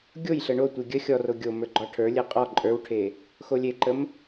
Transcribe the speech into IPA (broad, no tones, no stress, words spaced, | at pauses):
ɡʲojɬə ɳotʷe ɡʲə xʲɔro ɡʲomə˞ ɡ͡ǃɔʈʰə˞lʲe qʼɔ ǃʼə˞wʈʰe | xolʲeǃəm